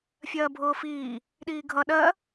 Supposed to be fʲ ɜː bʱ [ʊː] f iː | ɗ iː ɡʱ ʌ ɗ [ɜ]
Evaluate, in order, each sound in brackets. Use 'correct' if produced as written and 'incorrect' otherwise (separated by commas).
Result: correct, correct